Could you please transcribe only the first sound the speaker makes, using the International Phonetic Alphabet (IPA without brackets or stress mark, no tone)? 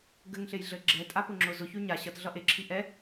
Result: ɡ